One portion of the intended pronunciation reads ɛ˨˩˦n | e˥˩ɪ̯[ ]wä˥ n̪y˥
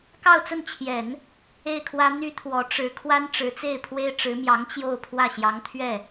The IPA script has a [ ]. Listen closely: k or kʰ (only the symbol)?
kʰ